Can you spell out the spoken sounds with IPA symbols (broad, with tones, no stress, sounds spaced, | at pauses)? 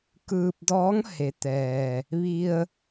k ɯː˧ p̚ d ɔː˧˥ ŋ h e˩˧ t̪ ɛː˩ | ʋ i˧ ə̯